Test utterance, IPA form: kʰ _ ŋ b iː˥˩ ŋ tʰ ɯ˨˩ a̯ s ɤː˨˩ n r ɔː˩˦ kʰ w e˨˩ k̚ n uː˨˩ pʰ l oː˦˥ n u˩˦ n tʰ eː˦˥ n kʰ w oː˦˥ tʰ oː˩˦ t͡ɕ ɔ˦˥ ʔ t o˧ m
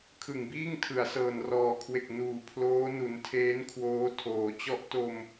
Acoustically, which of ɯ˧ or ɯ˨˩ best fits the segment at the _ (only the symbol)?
ɯ˨˩